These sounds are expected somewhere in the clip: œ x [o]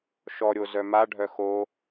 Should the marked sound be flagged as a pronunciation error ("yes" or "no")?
no